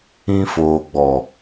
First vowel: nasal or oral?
nasal